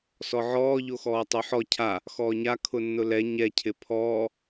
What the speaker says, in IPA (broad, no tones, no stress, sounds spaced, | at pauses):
s ɔ ʕ ɔː ʎ o x ɔː tˤ o ħ ɔ cʰ a | x ɔː ɲ a kʰ ʊ nː ʊ l ɛ ɲ ɛ cʰ ɪ pʰ ɔː